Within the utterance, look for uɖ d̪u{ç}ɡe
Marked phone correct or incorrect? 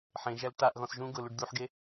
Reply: incorrect